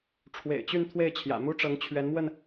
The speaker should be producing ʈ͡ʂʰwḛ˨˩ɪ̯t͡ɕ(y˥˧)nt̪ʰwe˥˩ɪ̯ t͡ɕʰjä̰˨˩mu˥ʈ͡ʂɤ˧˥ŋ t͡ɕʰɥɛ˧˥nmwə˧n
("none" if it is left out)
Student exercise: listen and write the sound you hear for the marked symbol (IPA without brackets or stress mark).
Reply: y˥˧